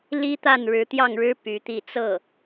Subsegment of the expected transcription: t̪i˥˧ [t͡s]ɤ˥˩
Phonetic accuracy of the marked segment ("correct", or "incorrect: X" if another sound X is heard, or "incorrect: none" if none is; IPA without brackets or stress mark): correct